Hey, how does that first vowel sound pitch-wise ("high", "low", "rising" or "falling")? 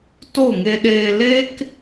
falling